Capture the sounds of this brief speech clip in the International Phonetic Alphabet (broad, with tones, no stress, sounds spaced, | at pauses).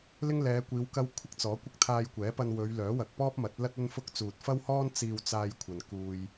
l ɪ˥ ŋ l ɛː˨˧ kʷ iː˨˧ w k ɐ˧ w kʷʰ ɪ˥ k̚ t͡s ɔː˨˥ kʷ ɪ˥ k̚ t̪ʰ aː˧ j kʷ ɛː˨˥ p ɐ˧ n w ɵ˨˧ ɥ l œː˨˥ w ɐ˨ k̚ p ɔː˥ p̚ m ɐ˨˥ t̚ l ɐ˥ t̚ ɵ˥ n f ʊ˥ k̚ t͡s uː˨ t̚ f ɐ˥ w h ɔː˥ n t͡s iː˧ w t͡s aː˧ j kʷʰ ɐ˨ n k uː˧ j